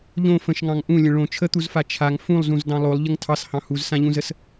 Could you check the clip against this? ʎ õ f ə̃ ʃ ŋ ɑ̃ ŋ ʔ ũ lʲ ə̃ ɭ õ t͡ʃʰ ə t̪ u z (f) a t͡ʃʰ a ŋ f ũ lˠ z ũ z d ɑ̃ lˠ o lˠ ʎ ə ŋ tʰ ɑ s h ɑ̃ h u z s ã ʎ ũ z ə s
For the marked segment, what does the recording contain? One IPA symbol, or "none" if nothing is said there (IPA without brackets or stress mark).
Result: f